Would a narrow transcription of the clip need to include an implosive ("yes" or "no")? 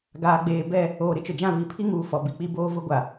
no